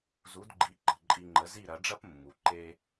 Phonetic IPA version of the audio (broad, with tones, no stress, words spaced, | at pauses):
zu˩˥dɡ͡ǃi˩˥ǃə̤˩ ǃʼi˧ŋ͡ǃə˩˥ zi˥˩ɾɐ˩˥ɖ͡ʐɐ˥pmːu˩ ǃe˧